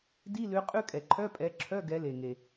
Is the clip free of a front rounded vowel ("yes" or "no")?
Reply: no